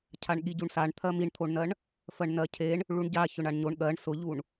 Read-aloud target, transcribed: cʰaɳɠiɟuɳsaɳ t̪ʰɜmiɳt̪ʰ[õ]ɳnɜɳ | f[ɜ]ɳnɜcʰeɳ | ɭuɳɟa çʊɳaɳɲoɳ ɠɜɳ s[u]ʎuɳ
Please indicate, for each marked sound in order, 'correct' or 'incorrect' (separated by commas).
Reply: incorrect, correct, incorrect